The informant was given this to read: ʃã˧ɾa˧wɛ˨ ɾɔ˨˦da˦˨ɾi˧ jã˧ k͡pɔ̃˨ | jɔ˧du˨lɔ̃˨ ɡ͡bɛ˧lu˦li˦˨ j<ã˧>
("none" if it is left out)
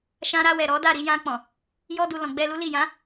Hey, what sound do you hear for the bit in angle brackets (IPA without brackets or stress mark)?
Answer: ã˨˦